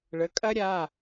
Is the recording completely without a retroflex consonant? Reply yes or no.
no